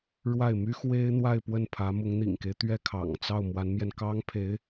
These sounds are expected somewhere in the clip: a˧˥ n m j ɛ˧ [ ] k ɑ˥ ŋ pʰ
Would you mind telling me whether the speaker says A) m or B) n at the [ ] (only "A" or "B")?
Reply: B